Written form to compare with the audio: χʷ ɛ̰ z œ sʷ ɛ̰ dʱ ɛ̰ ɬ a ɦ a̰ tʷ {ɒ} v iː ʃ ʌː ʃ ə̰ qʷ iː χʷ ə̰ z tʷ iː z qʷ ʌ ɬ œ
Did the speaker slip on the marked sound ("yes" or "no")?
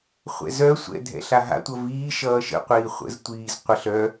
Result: yes